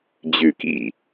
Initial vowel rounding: rounded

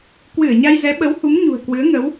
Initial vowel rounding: unrounded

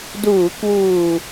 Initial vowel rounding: rounded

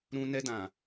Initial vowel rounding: rounded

